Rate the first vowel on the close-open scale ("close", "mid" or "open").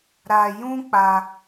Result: open